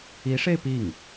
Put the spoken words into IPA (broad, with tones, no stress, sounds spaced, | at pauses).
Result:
i˧˥ ʂ e˥˧ ɪ̯ p i˥˩ ŋ